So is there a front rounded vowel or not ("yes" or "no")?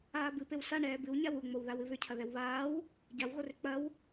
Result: yes